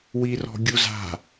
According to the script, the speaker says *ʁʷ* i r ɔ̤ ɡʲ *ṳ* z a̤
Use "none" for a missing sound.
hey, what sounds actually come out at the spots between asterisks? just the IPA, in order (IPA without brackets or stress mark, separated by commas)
w, u